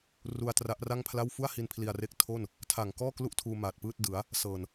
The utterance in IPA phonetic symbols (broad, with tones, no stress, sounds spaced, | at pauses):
r u˧ a̯ t r a˦˥ ʔ r a˥˩ ŋ pʰ l a˥˩ w f u˥˩ a̯ h i˧ n pʰ l i˧ a̯ r e˦˥ k̚ tʰ o˥˩ n | tʰ a˨˩ ŋ k ɔː˥˩ k l u˥˩ ʔ tʰ uː˧ m aː˨˩ t̚ p ɯː˥˩ t̚ d ɯ˩˦ a̯ | s ɤː˨˩ n